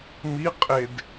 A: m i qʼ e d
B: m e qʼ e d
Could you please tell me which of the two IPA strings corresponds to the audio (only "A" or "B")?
A